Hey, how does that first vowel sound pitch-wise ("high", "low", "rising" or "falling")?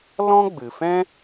high